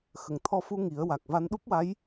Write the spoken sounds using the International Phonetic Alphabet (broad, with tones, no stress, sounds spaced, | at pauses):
x ə˨˩˨ ŋ t̪ʰ ɔ˧ f u˧ ŋ i˨˩˦ ə̯ w a˨˩ k̚ v a˧ n ɗ u˦˥ p̚ w a˧˥ j